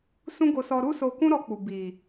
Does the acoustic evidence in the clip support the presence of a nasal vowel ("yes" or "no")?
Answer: yes